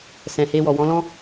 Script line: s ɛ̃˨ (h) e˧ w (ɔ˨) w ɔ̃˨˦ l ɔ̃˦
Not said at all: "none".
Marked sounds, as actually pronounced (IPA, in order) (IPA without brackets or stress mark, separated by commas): h, ɔ˨